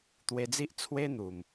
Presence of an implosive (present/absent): absent